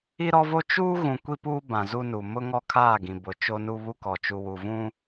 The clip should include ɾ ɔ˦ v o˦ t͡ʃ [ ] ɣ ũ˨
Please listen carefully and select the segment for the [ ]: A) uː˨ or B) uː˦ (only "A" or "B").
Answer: B